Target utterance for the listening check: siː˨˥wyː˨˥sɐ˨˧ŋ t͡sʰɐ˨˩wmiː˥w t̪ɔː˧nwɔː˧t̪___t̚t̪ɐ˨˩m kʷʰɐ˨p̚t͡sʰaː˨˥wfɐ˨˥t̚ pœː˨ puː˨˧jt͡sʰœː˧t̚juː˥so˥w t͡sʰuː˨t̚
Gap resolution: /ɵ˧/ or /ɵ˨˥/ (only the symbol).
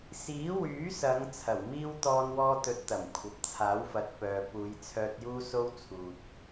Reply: ɵ˨˥